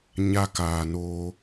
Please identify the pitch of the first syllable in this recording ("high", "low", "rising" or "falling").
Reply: high